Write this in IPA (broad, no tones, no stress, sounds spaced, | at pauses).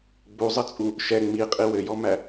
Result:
ɡ͡b u zˤ ɘ t͡sʼ u | ʃ ɛ ŋ͡m i qʼ i w ɘ j ɔ m æ